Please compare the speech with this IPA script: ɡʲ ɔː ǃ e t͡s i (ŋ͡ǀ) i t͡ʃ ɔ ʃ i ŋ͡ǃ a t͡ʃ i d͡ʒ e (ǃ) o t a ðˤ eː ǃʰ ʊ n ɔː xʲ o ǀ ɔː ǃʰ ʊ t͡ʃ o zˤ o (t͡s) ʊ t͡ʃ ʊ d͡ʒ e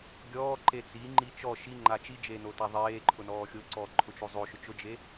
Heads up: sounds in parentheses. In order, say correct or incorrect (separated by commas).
incorrect, incorrect, incorrect